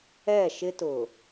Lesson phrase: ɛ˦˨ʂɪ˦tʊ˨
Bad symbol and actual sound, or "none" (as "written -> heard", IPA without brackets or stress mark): ʂ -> ʃ